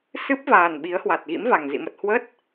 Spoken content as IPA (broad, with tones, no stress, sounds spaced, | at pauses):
s ɨ˦˥ p̚ v aː˨˩ n ɓ i˨˦ ə̯ h w a˨˩ t̚ ɣ ḭ˧˥ m v a˨˩ ŋ z ḭ˧˨ m ə˨˩ t̚ h w ə˦˥ t̚